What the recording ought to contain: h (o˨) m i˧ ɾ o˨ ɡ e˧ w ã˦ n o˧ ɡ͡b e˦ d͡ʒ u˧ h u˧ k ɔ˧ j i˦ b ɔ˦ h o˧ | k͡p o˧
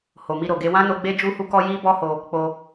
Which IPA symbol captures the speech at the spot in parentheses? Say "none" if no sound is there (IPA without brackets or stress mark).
o˨